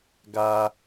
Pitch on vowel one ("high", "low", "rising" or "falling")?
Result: low